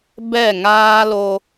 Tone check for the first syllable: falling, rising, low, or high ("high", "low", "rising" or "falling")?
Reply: falling